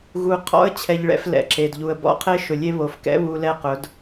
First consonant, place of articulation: velar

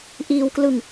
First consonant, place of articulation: glottal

